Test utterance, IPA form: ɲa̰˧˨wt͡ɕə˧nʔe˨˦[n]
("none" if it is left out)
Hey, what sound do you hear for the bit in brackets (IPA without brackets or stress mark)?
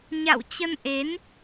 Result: n